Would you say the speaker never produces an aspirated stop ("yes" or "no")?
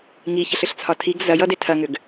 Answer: no